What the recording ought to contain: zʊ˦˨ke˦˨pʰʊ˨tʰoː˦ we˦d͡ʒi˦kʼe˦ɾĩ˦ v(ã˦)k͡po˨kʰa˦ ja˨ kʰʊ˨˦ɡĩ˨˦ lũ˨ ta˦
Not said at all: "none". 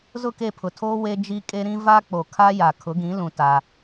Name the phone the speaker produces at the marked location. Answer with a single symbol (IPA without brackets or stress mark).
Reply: a˦